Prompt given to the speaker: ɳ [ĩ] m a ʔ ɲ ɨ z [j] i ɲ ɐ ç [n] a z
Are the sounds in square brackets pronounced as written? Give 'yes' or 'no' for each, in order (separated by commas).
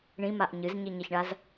yes, no, no